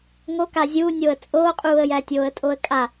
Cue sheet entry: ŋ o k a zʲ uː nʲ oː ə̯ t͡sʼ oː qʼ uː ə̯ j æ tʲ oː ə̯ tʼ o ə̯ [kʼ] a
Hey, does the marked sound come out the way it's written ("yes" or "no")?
yes